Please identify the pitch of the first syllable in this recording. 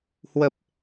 low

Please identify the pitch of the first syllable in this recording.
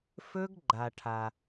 high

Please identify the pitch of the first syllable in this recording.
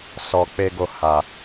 low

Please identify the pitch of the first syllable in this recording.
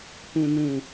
low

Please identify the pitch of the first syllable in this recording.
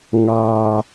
low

